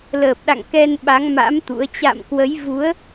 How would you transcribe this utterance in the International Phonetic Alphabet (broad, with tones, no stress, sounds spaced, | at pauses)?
l əː˨˩ p̚ ɗ a̰˧˨ ŋ k ɛ˧ n ɓ a˨˦ ŋ m a̰˧˥ m t̪ ṵ˧˥ ə̯ t͡ɕ a̰˧˨ m k w ə˨˦ j v u˨˦ ə̯